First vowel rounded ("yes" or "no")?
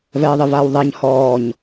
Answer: no